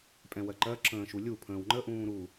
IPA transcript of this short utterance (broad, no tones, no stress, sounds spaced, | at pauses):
pʼ ɛ̃ w ɜ ǃ ɜ ǁ ə̃ː ʃ u lʲ u pʰ ə̃ː w ŋ͡ǃ ə ʔ ũː ɾ u